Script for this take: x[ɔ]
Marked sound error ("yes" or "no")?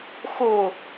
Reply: yes